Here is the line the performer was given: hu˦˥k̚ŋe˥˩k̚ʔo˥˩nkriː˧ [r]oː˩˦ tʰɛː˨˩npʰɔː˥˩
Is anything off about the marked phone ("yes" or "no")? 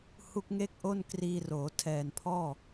no